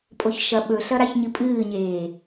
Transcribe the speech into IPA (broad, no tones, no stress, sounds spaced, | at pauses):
pʼ o ç ʃ ɐ ɓ ɵ ɬ ɐ ɾ a ç ɲ ɨ pʼ ɨː ɲ eː